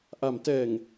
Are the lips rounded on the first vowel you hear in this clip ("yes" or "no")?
no